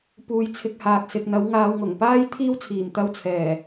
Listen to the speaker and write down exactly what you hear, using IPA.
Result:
p uː˧ j t͡sʰ ɪ˧ k̚ h aː˨ k̚ s ɪ˨ k̚ n̪ ɐ˨˥ w ŋ aː˨˧ w ŋ ʊ˨˩ ŋ p aː˥ j t̪ʰ iː˥ w t͡sʰ iː˨˩ m t̪ ɐ˧ w t͡sʰ ɛː˨˩

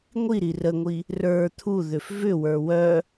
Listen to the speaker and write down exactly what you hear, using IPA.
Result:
ŋʷ i ɾ i r ə ŋʷ i | r ə˞ t̪ʰ u ð ʏ f v ʏ w ə˞ w œ

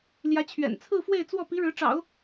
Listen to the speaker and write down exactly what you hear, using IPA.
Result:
l j ä˧˥ t͡ɕʰ ɥ ɛ̰˨˩ n t͡sʰ ɹ̩˥˧ f w e˥˧ ɪ̯ t͡s w ɔ˥˩ p i˧˥ ɻ ɻ̩˧˥ ʈ͡ʂ ɑ̰˨˩˦ ʊ̯

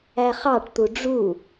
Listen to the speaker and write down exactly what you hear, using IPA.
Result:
æ χ ɑ ʈ t̪ u ɖ͡ʐ u

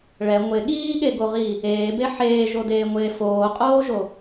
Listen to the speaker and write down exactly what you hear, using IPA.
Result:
ɭ ɛ ŋʷ e ɠ iː ɠ e ɡ o ʁ i | eː b e ħ eː ʒ o d eː ŋʷ eː f oː qʼ oː ʒ o

